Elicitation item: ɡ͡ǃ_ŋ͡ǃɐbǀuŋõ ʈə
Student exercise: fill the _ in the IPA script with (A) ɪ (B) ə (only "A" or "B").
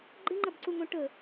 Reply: A